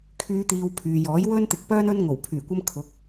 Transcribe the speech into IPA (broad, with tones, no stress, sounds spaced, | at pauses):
kʰ yː˨˧ t̪ iː˨ w pʰ yː˨ j ɔː˨˥ j w ɵ˥ n t̪ ɪ˧ k̚ p œː˥ n ɵ˧ n ŋ o˨˩ w pʰ yː˨˩ kʷ ɐ˧ m kʰ ʊ˨˥ k̚